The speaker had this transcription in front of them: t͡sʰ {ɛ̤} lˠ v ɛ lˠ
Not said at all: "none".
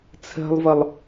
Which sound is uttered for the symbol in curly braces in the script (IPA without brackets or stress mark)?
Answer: ɛ̤